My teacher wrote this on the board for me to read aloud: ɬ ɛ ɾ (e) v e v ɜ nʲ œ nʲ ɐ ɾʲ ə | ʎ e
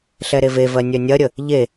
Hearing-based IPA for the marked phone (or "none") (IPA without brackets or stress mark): e